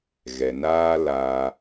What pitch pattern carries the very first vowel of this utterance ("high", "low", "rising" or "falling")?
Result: low